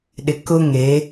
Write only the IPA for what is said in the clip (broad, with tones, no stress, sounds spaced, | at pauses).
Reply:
ɗ ɪ˨ k ʊ˦ ŋ e˨˦